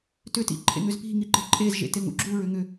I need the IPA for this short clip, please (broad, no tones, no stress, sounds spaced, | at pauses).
t ʏ t ḭ ǃʰ ḛ ŋ ʏ z p i̤ ŋ i ǃ e̤ ǃʼ e z ʒ ḛ t e ŋ ṵ ɡ͡ǁ u ɹ ʏ ŋ ʏ